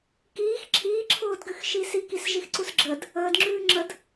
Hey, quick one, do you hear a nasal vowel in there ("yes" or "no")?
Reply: no